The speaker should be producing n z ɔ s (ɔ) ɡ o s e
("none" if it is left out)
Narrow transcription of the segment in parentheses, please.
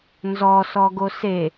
ɔ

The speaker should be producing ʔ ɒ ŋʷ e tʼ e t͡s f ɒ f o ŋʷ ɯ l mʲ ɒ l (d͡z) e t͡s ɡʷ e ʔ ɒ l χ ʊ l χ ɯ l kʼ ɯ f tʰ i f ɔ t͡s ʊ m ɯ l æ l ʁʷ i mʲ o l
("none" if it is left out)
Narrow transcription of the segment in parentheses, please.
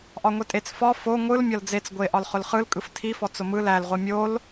d͡z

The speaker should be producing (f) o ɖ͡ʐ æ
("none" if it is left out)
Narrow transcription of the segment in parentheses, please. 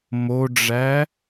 m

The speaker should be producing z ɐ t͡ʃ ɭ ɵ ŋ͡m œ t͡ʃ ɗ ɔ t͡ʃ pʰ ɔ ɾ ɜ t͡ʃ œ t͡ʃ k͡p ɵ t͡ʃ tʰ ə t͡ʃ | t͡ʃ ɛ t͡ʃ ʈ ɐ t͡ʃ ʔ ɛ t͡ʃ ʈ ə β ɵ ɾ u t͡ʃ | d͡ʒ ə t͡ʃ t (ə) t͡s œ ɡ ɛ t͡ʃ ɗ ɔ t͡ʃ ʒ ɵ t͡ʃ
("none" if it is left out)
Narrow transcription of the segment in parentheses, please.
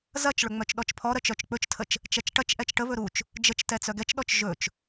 ɛ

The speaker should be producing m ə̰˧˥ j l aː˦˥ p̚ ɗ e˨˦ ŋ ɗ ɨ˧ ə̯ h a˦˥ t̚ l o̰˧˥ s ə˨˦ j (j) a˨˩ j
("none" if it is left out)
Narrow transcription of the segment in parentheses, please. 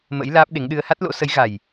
ɣ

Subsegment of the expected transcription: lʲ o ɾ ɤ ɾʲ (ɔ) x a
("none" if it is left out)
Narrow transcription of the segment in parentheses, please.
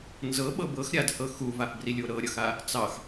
ʌ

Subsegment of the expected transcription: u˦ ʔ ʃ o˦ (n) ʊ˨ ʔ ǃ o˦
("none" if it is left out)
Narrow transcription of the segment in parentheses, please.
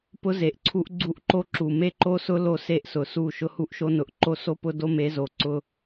n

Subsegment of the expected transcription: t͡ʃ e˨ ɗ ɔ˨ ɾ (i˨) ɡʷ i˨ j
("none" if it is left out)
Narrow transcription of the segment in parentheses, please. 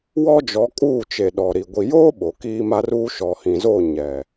i˨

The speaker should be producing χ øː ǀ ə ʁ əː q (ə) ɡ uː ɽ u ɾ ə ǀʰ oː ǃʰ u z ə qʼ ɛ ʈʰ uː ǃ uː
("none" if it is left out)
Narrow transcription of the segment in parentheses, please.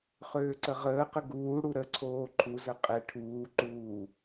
ə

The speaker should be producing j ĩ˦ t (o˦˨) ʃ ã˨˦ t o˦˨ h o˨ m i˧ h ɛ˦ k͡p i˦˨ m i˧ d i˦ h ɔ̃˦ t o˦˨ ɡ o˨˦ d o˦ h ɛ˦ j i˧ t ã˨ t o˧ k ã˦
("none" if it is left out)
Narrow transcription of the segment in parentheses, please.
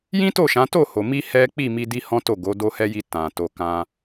o˦˨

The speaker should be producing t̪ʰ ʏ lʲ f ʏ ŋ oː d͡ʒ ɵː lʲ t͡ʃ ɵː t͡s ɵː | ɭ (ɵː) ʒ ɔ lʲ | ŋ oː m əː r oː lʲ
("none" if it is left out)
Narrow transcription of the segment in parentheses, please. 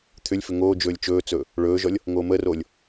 ɵː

